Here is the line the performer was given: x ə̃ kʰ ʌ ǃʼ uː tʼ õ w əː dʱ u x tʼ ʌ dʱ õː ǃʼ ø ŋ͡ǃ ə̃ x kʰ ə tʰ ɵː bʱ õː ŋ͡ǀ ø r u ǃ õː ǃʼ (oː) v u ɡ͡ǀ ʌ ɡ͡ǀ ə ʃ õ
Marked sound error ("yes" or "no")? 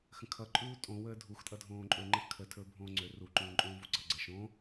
yes